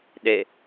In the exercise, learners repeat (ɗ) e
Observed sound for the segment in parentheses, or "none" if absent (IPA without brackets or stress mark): ɗ